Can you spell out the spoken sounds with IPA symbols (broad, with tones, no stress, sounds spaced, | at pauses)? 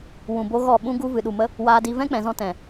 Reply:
w ũ˨ b o˧ ɣ ɔ˦˨ ɓ ũ˦ ɡ u˧ v ɨ˨ ɗ u˨ m ə˦ | w aː˧ d i˧ v ɛ̃˦ k͡p ɛ̃˨ z ɔ̃˧ t ɛ̃˨